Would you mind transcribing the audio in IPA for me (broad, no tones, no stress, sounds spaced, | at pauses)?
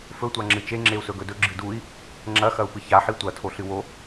f ɵ tʷ a ŋ͡ǁ ɨ t͡ʃ e ŋ͡ǁ e u̯ s ɵ ɡ ɵ d ɵ ɡ͡ǁ ɨ d u i̯ | ŋ͡ǁ ɐ x ɐ u̯ p ɨ ç a ħ i tʷ ɐ tʰ o ɬ ɨ w o